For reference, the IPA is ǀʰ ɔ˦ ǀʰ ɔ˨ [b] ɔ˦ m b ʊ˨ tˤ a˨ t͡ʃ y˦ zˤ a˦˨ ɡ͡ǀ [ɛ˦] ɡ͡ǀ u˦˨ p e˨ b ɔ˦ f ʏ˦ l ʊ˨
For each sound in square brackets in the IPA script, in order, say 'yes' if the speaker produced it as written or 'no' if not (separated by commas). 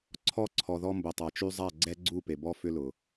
no, yes